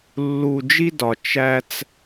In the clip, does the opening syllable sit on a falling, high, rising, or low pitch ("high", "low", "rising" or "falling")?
low